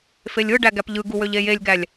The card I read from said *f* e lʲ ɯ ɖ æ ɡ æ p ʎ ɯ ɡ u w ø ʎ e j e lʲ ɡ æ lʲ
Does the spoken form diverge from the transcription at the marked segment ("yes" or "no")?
no